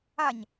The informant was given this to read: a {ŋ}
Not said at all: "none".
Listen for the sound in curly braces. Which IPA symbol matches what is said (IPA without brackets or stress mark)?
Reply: ɲ